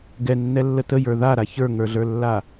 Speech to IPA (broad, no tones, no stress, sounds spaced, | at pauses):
ɡ ɛ nː ɛ lː ə t ə j ə˞ ð a ɾ a ç ə˞ ŋ ə˞ ɮ ə˞ lː a